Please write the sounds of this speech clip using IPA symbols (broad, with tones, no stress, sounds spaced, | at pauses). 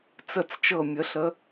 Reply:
t͡s ə˨˩ t͡s t͡ʃ ɤ˨˩ mʲ ə˩˧ ɬ ə˩˧